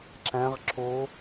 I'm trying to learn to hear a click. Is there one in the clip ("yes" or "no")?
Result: yes